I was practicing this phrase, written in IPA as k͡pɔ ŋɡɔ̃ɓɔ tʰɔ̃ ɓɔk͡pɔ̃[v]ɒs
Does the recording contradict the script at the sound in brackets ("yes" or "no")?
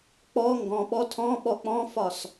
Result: yes